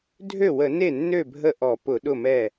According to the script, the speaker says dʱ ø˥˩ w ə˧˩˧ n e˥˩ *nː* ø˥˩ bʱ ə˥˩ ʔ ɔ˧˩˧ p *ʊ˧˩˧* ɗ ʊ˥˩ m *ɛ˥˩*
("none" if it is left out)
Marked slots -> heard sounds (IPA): nː, ʊ˧˩˧, ɛ˥˩

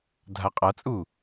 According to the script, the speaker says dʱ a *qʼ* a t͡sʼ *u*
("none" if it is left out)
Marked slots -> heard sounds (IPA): qʼ, u

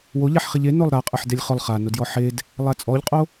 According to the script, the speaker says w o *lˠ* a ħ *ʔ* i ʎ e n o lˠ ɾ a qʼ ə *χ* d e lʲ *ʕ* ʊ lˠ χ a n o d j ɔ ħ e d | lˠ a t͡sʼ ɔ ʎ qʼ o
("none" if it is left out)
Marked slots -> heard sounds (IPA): ʎ, χ, ħ, χ

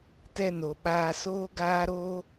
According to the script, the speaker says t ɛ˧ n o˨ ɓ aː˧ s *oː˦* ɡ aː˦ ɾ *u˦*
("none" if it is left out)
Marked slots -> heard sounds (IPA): oː˦, o˦

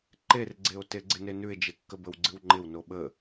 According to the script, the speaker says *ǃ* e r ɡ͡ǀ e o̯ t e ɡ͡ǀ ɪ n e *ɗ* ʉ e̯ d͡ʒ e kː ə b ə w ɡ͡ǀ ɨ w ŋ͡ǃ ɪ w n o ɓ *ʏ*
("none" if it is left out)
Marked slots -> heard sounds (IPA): ǃ, n, ə

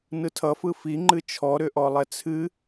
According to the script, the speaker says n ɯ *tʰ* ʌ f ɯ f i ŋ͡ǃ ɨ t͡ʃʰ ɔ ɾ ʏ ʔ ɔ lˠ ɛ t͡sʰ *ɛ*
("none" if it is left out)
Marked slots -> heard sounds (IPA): tʰ, ɨ

